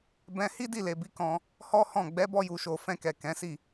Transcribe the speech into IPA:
bɛ̃˧ hi˦di˦˨le˨bi˨˦ kɔ̃˧ | hɔ˦ hɔ̃˦˨ ɡ͡bɛ˨˦bɔ˧ju˨ʃo˨ fɛ̃˧kɛ˨ kɛ̃˨˦si˦˨

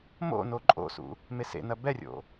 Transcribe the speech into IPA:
mo̰no ǃʼo̰sṵ | mesḛnɐ bɛrʲo̰

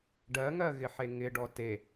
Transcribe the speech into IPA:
ɖɜŋɜɣɪħe ŋɪɖɔ te

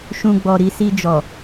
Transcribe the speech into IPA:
ʃũ˧ɡ͡bɔ˨ɾi˨˦ si˧d͡ʒɔ˨

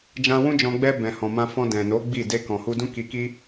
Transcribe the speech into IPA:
d͡ʒã˧wũ˦d͡ʒɔ̃˧ ɡ͡bɛ˧ bɛ̃˨hɔ̃˨mã˧ fɔ̃˧dɛ̃˨no˨˦ ɡ͡bi˦˨ de˧kɔ̃˨hu˧dũ˦ ki˧ki˦

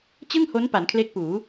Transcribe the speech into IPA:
t͡ɕɯ˥˩ŋho˦˥n pa˩˦nkʰle˦˥k̚puː˩˦

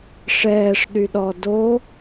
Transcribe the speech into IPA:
ʂɛːʂɗyɗɔ do

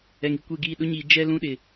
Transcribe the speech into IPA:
ɛ˨ŋi˨kʷe˦˨ɡiː˦˨ ɗʊ˦ɲiː˨ d͡ʒɛ˦ lũ˦ɗɪ˨

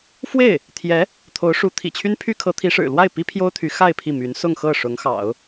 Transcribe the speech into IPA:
fwe˥˩ɪ̯ | t̪ʰjɛ˧˥ | t̪ʰo˧˥ʊ̯ʂu˧˥ t̪ʰḭ˨˩t͡ɕʰy˥npʰy˥ kʰɤ˧˥t̪ʰi˧˥ʂɻ̩˨˩ lwa˥˩ɪ̯ pi˥pʰjo˥ʊ̯t̪ʰy˧˥ xa˥˧ɪ̯ pʰi˥˩my˧˥n sʊ˥˧ŋxɤ˥˩ ʂʊ˧˥ŋxɑ̰˨˩˦ʊ̯

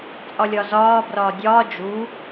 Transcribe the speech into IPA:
t͡sʼɒlʲɒzɒːbrɒː dʲɒː d͡ʒu

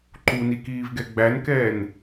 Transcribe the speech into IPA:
ǃunikiːvɡɛ ɡ͡bænkɛːn

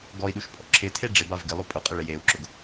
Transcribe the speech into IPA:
ɡɔi̯ɗuʃpʼɔ̰ ǁɪtʰe ɖ͡ʐɪbav ɡɪlˠo pʼʊqʼɪ ɭɪjeu̯ǁʊɡ

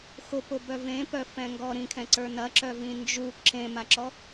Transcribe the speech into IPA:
xʊpʊbœ vẽpœfɛ̃ŋɡɔ ɾĩkʰɛ̃ǀə˞ nɐǁœvĩ nd͡ʒu ǁẽmaǁɔ

